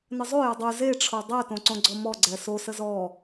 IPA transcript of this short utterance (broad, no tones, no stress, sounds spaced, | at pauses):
n ə zˤ o j ə dˤ ʉ z e ʈ͡ʂʰ o dˤ ɛ t õ ǀ õ ɡ͡ǀ ɔ m ɔ ɡ͡ǀ ɛ s o s ə z ɔ